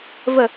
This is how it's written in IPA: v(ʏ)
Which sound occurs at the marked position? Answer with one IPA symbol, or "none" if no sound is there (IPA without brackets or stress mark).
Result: ə